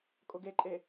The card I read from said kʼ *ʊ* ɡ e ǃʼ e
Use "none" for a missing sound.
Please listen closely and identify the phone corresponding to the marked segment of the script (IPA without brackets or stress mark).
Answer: ʊ